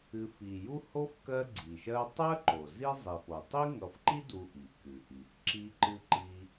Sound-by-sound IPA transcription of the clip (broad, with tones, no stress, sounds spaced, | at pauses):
ɨ˨ f i˩ j u˦ h o˥ f k ɜ˦ ɡ͡ǀ i˩ ʃ ɜ˦ tˤ ɜ˥ ǃ o˩ z i˦ zˤ i˩ f o˩ tˤ i˥ ŋ ʌ˨ f ǃ i˥ d u˨ ʔ i˩ k ɨ˩ ʔ i˩ f ǁ i˦ ǃ ɨ˦ ǃ i˥